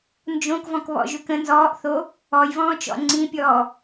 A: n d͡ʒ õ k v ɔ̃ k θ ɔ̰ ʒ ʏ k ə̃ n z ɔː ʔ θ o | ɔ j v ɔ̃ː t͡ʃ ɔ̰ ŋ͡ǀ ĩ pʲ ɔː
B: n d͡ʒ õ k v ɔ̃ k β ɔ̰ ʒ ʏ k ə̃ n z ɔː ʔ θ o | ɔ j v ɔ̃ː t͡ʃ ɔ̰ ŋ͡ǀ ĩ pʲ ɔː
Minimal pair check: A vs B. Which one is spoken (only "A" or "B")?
B